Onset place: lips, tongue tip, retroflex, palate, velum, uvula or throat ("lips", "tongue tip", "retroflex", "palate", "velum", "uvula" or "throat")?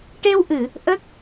retroflex